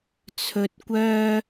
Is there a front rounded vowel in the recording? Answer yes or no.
yes